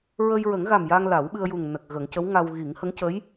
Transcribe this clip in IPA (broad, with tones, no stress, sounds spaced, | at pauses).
ɹ ə˧ j ɹ ə˨˩˦ ŋ ɣ a˨˩ m j a˧ ŋ l a˨˩˦ w ɓ ɨ˧ ə̯ j u˨˩ ŋ n ə˨˩ k̚ ɣ ə˨˩˦ ŋ c ə˧˥ w ŋ a˧ w ɣ i˨˩˦ ŋ h ə˧˥ ŋ c ə˧˥ j